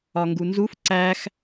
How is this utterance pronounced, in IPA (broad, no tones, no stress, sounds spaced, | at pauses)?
ɒ ŋ ɡ u n z u f ǀ æ x